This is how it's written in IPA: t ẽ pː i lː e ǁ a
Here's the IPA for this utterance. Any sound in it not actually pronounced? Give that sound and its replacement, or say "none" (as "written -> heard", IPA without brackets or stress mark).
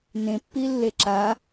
t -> n